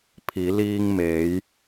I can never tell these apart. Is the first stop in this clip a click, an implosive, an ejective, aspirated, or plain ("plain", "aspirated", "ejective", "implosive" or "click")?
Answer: aspirated